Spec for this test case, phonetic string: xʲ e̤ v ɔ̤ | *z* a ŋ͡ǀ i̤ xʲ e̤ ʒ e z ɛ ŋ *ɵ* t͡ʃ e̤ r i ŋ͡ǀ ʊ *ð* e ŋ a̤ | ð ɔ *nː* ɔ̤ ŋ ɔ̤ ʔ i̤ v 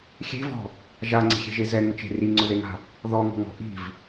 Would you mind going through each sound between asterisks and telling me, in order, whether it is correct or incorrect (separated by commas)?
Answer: incorrect, incorrect, correct, incorrect